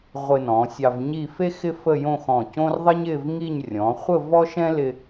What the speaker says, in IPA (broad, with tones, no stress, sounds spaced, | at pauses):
ʁʷ ɪ˧ n ɔ̃˩˧ sʲ ɑ˧ v ɲ i˥˧ f e˥ x ɪ˥ f ə˥˧ j õ˥˧ x ɔ̃˧˩ c õ˥ r ðˤ ɪ˥ ɲ ɪ˥˧ v ŋ i˥˧ ɲ rʲ ɔ̃˩˧ χʷ ə˥˧ v ɔ˥ ʃ ɛ̃˥ l ɪ˧